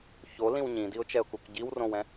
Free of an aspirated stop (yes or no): yes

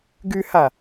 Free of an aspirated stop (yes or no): yes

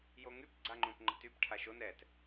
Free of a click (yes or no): no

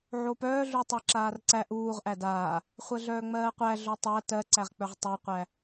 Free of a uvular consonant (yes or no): no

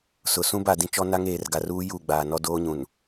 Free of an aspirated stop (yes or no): yes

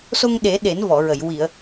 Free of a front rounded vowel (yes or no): yes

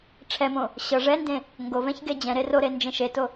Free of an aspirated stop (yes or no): no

